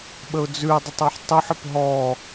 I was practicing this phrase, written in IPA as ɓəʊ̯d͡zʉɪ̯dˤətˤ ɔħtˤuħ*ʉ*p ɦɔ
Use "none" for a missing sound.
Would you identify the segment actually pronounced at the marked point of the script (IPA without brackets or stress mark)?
ə